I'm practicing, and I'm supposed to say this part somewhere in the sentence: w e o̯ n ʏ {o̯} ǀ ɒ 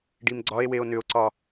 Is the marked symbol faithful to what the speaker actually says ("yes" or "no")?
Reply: yes